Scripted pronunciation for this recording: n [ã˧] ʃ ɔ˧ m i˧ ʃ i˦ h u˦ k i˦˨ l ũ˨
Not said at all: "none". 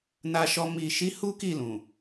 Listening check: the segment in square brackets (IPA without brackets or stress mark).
a˧